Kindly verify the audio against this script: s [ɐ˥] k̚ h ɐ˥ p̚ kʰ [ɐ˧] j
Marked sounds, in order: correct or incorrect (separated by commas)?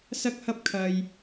correct, correct